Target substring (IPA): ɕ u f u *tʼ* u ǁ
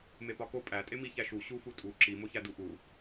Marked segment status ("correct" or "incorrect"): correct